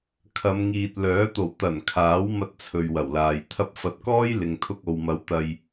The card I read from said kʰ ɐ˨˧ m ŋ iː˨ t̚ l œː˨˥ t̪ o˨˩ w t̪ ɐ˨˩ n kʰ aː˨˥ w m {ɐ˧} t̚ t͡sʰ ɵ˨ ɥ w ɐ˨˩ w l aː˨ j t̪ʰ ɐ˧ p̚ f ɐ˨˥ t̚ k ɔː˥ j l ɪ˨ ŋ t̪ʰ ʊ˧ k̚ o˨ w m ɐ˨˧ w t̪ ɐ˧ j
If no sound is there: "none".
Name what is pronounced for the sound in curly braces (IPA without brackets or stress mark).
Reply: ɐ˧